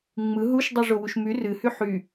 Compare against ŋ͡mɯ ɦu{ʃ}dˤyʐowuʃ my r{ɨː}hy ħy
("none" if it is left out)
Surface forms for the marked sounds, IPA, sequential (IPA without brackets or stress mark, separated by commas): ʃ, ɨ